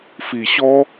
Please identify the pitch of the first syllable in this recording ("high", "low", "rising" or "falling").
low